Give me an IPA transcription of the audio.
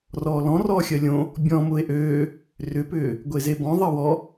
r ɔː l ɔ̃ r ɔː xʲ ɜ lʲ õ | bʲ ɔ̃ m ʊː e̯ ʔ øː | r ʏ p ʏː | ɡʷ e z e b ɔ̃ ðˤ ɜ w ɔ

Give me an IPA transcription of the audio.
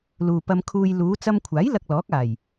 l uː˨ p ɐ˧ m kʰ uː˧ j l uː˨˧ t͡s ɐ˧ m kʷʰ aː˨˥ j l ɐ˧ k̚ l ɔː˨˥ k̚ aː˨˩ j

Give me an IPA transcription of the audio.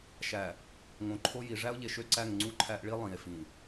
ʃ æ˨ | ŋ õ˨ ǃʰ o˦ j i˨ ʐ æ˦ o̯ ʎ e˨ ʃ ø˦ ǀ æ˦˨ ŋ ŋ͡ǀ u˦ ǃʰ æ˦ ʔ ɭ i˦ lˠ ĩ˨ e̯ f ĩ˨

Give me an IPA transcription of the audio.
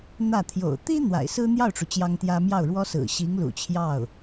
n̪ ä˥˩ t̪ʰ j o̰˨˩ ʊ̯ t̪ i˥ n̪ w a̰˨˩ ɪ̯ s ɹ̩˥ n̪ j ɑ˥˩ ʊ̯ ʈ͡ʂ u˩ t͡ɕ j ɑ˥ ŋ t̪ j ä˥ m j ɑ˥˩ ʊ̯ ɻ w ɔ˥ s ɹ̩˨˩ ɕ i˧˥ ŋ l ṵ˨˩ t͡ɕʰ j ɑ˥˩ ʊ̯

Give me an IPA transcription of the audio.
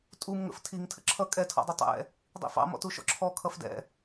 tʼ u m ŋ ə̰ f tʰ i ŋ tʰ ə̰ ǁʰ ʌ kʼ ɛ tʰ ɔ̰ dˤ ʌ tˤ ɛ̰ | dˤ ḭ f ɑ̰ m ɔ̰ t u ʃ ɔ̰ ǁʰ ɔ kʰ ʌ f d ɛ̰

